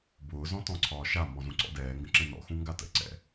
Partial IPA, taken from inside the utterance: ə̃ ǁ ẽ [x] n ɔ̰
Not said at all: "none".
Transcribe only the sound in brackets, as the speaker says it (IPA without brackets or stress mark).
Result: none